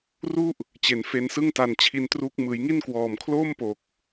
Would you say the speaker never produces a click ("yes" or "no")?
yes